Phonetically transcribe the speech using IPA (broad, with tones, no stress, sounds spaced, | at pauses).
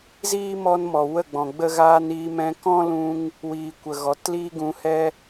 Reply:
z iː˦ m ɔ˧ n m ɔ˨ w ə˦˨ ɡ͡b ɔ̃˨ ɡ͡b ə˦ ɣ aː˧ n iː˧ m ɛ̃˧ k ɔ̃˦ l ũ˧ ŋ | w iː˨ kʷ ə˨ ɣ ɔ˨ t l iː˦ ɡ ũ˧ h ɛ˦